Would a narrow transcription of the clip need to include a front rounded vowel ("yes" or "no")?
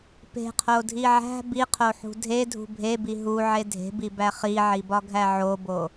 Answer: no